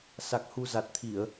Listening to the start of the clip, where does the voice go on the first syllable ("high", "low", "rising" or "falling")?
low